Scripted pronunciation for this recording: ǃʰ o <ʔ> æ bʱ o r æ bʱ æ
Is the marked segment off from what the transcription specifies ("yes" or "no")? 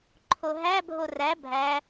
yes